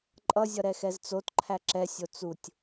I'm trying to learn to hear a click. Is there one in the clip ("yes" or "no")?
yes